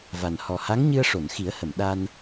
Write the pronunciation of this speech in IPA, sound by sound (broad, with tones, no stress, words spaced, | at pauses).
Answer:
va˨˩n hɔ˨˩ha˧˥ŋ ɲɨ˧ə̯ʂo˨˩˨nxi˨˩˦ə̯hə˨˩˨m ɗa˧n